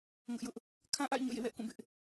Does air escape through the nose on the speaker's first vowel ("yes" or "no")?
no